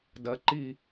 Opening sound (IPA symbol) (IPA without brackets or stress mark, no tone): d